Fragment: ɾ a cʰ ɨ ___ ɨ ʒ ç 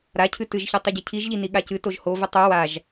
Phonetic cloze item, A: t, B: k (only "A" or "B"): A